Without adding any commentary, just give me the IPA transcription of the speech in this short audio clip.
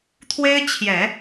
t̪ʰ w e˥ ɪ̯ t͡ɕʰ j ɛ˨˩˦

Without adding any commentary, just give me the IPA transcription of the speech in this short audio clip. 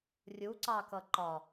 rʲ u ǀ ɑ k ʌ ǃ ɒ

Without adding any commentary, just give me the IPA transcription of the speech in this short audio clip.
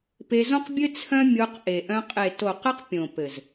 p e˧ z õ˦ q bʲ ɘ˦ t͡sʰ œ̃˦ mʲ o˧ q ʔ e˨ ʔ œ̃˧ qʼ e˨ t o˨ q ɘ˧ q pʲ õ˨ p ɘ˨ z

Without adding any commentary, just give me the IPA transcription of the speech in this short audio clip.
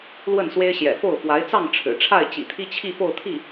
l w ə˥˩ n s w e˥ ɪ̯ ɕ j ɛ̰˨˩ f o˥˩ ʊ̯ f w a˧˥ ɪ̯ t͡s ɑ˥˩ ŋ ʈ͡ʂʰ ɻ̩˨˩ ʈ͡ʂʰ a˥˩ ɪ̯ t͡ɕ ḭ˨˩ t̪ʰ i˥ t͡ɕʰ i˥˧ f o˥˧ ʊ̯ t̪ʰ i˥˩

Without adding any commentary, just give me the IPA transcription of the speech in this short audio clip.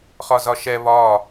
χ ɒ z ɒ ʃ ɛ β ɒ

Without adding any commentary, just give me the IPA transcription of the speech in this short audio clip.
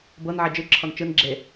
b ɤ n ʕ e d͡ʒ ɯ ǁʰ ɔ n t͡ʃ ɯ n ɡ͡ǁ e

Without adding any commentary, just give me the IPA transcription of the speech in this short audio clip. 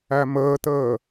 æ m əː t əː

